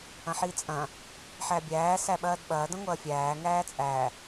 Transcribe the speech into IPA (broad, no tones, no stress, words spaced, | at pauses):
ɐ̃ħit͡sʼɐ̃ | ħæbʲæː sæɓɐːdɓɐː dɐ̃ŋʷɐːfʲæː ŋæːt͡sʼæ